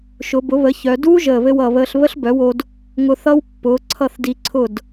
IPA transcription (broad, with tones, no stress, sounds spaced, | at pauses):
ʃ ʊ˩˧ b ʊ˩˥ β ə˩˥ ç œ˩˧ d uː˦˥ ʒ əː˨˩ β ɘ˧ w ʌ˨˩ β əː˧ ɬ β ə˦˥ ɬ b œ˩˥ w o˧ d | ŋ ʊ˧ θ ʌ˦˥ w pː ʊː˩˥ ǀʰ ʌ˥˩ θ d i˧ ǀʰ ʊ˥˩ d